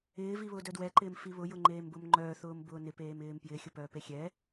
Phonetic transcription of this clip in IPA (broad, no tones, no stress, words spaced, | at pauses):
ɪːviβʊːdœ dwɛǃɪːmfi βʊjʊŋ͡ǃeːmbʊm ŋ͡ǃœːθʊːmbʊː nɪpeːmɪːm pjɪːxʲʊpœːpe xʲɛ